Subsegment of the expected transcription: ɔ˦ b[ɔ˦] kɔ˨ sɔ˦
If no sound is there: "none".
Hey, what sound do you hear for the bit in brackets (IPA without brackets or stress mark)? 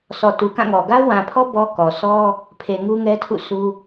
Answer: ɔ˦